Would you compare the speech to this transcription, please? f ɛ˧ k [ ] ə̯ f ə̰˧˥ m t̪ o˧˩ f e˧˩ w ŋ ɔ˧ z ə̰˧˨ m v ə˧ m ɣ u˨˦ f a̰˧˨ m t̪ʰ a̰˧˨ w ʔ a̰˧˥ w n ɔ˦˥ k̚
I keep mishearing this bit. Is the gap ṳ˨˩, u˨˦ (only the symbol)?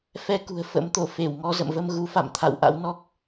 ṳ˨˩